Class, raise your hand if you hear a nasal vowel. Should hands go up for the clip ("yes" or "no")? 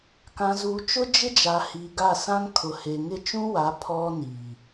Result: yes